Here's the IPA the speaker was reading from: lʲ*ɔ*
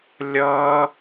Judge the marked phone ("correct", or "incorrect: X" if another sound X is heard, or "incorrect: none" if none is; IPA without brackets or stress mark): incorrect: ʌ